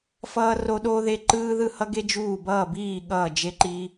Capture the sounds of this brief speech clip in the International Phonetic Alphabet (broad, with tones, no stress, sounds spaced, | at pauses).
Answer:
f ʌː˥ r o˥ ɗ oː˥ ð e˥ ǃ ɯː˥ ð ɯ˥˧ h ʌ˥ ɡ e˥ d͡ʒ uː˥˧ b ʌː˥˧ b iː˥˧ ɠ ʌː˥˧ d͡ʒ e˥ ǃ i˥